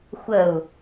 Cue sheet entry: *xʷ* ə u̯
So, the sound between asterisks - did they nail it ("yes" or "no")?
yes